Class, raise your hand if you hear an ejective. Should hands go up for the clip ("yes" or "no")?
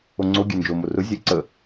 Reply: no